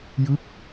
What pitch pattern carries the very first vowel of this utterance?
falling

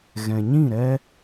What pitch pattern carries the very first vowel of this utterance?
low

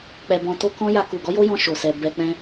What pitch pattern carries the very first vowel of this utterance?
low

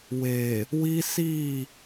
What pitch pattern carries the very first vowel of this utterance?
low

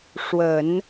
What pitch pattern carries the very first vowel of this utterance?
low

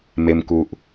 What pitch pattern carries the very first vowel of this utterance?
low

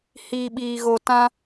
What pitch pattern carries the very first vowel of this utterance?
low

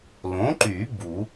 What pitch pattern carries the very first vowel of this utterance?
rising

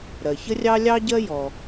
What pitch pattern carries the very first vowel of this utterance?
low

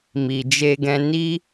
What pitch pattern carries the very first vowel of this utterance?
low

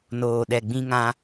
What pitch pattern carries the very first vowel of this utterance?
low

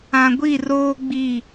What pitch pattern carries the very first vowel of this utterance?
low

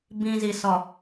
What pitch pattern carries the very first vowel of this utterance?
low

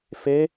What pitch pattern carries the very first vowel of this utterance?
rising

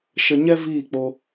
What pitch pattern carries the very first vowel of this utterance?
low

